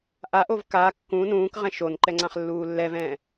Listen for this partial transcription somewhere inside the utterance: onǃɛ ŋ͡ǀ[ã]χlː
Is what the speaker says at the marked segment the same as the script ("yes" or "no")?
yes